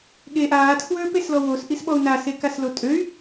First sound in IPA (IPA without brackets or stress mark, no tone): ɠ